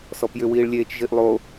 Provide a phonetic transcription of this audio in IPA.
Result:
s ɔ p j ʏ w iː ɭ lʲ eː t͡ʃ ʒ i ʔ lˠ o

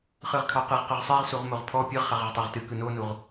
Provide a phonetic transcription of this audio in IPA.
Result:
χ ɯ ʁ kʰ ɑ q ɯ ʁ q ə ʁ sˤ i ʁ s u ʁ m o ʁ pʰ ɔ pʲ ɯ ʁ χ a ʁ ə ʁ tˤ ɑ ʁ t ɨ k ɯ n o n u ʁ

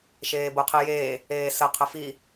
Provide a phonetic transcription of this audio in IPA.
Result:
ʃ eː b o qʰ i j eː | eː s ə qʰ ə f i

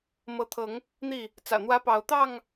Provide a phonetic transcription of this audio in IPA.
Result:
m ɤ˨˦ t̪ʰ ɤ˨˦ ŋ | n̪ i˥˨ | t͡s ä̰˨˩ n̪ w ä˦ p ɑ˨˦ ʊ̯ t̪ ɑ˥˨ ŋ

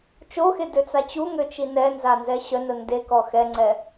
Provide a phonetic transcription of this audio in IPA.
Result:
t͡ʃ o x e d ø t͡s a t͡ɕ u ŋ ø t͡ʃ i n ɛ n z a n z ɛ ɕ œ n ə n d e k ɔ x ɛ ŋ͡ǀ ɛ

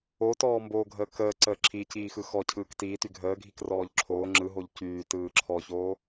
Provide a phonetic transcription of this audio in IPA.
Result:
o t ɔː m b oː ɡʱ əː k əː ǀ əː ǁʰ i c iː x ɯ x ɔ cʰ ɯː k t iː t y ɡʱ əː ɡʱ i k r ɔː ʎ ǁʰ oː ŋ͡ǁ ɯ ɦ o ʎ c yː t ɯː ǁʰ ɔ ç oː

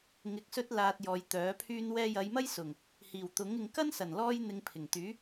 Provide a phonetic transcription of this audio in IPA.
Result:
ŋ ɪ˧ k̚ s ɵ˥ t̚ l aː˧ t̚ j ɔː˨ j t̪ œː˨˥ pʰ yː˥ n w ɛː˥ j ɐ˨˧ j m ɐ˥ j s ʊ˨˩ ŋ | h iː˨˩ w t̪ ʊ˨˥ ŋ ɪ˨ ŋ k ɐ˥ n s ɐ˨˩ n l ɔː˥ j n̪ ɪ˧ ŋ pʰ ɪ˨˩ ŋ t̪ yː˨˥

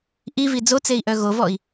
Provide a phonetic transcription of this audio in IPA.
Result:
ʔ i v i d͡z o t͡s e i̯ ʔ œ ɣ o v ɔ i̯

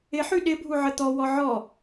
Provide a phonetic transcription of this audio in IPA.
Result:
ɪ ħ y ɗ ɪ bʱ u ʕ ə t̪ ɔ w ɔ ʕ ɔ

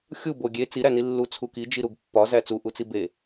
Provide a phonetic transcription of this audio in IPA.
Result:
xʲ u b o ɡʲ e t͡s i ɾ æ n i lː u t͡sʰ u k i d͡ʒ i ɾ u ɡ pː ɒ z æ t͡s u ʔ u t͡s i b e

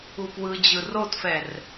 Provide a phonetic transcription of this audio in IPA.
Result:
u p w ɯ d͡ʑ ɯ r o t f ɛ r

